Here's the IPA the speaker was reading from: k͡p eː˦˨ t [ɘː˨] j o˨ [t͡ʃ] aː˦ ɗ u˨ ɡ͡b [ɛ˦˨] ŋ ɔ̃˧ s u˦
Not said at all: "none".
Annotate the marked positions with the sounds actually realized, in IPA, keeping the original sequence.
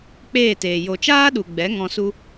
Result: eː˨, t͡ʃ, ɛ˨˦

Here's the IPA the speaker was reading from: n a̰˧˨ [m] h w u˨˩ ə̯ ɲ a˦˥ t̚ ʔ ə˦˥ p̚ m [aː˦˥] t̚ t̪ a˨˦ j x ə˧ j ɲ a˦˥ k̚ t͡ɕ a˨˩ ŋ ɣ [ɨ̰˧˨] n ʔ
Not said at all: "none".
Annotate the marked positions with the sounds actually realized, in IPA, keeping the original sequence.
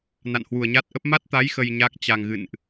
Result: n, a˦˥, ɨ̰˧˨

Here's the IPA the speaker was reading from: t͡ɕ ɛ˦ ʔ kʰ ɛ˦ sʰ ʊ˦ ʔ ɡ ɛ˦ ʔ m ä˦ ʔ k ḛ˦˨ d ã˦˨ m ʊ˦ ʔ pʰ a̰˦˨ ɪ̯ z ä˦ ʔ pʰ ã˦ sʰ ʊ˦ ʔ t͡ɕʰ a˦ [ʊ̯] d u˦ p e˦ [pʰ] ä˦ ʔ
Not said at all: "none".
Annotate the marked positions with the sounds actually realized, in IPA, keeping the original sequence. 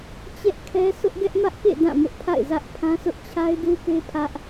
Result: ɪ̯, pʰ

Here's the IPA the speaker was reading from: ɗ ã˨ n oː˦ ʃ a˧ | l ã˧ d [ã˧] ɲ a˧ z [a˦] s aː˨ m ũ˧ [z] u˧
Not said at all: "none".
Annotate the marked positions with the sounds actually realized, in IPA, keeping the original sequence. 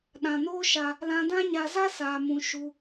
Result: ã˦, a˦, ʃ

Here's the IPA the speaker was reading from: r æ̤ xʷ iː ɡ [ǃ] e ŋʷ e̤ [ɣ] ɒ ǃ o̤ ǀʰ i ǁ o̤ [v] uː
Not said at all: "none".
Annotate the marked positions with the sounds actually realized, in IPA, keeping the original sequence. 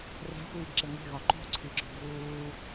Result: ǁ, ɣ, b

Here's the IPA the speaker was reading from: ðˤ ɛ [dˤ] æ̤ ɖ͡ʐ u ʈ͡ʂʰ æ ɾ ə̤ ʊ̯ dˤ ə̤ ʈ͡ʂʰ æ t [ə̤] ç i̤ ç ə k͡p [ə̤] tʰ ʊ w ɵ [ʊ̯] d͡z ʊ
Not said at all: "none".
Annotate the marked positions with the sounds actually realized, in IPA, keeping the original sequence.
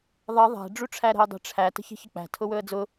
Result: ðˤ, ə̤, æ̤, ə̯

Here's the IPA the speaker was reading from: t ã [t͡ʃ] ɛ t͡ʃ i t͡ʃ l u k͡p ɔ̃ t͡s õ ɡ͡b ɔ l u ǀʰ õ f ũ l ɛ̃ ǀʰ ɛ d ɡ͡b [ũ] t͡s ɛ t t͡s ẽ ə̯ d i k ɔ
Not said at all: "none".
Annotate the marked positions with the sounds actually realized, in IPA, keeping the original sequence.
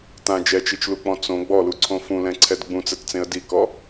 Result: d͡ʒ, ũ

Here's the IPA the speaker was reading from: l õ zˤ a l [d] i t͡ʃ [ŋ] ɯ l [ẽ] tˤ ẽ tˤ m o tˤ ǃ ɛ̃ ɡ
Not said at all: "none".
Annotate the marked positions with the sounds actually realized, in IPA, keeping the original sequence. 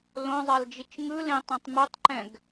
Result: d͡ʒ, ŋ, ẽ

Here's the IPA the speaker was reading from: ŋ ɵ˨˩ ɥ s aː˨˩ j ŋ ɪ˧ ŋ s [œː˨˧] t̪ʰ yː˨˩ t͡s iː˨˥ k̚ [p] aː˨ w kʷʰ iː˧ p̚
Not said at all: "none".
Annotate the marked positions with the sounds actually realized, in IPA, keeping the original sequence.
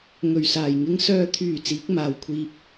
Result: œː˨, m

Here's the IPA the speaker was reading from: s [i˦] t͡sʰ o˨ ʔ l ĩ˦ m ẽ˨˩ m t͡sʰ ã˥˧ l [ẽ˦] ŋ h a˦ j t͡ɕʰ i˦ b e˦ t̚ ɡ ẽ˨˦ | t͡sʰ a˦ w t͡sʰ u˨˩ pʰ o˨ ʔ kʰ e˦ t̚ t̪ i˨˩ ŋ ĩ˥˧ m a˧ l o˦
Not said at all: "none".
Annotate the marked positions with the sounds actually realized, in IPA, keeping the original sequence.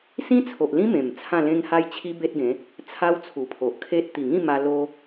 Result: ĩ˦, ẽ˦

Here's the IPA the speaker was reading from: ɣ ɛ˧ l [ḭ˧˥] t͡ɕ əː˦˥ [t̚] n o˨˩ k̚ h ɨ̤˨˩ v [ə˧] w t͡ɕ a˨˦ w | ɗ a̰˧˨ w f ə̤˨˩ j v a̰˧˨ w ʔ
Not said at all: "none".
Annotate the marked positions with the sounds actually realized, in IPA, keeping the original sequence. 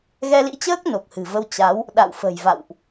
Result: ḭ˧˥, k̚, ə˧

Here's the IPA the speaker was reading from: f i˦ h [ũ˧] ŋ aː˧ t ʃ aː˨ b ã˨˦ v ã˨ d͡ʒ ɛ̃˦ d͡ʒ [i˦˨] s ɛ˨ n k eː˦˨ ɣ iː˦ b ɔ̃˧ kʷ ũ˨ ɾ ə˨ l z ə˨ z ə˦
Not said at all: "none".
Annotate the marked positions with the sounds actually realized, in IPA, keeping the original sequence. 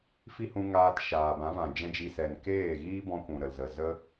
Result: ũ˧, i˧

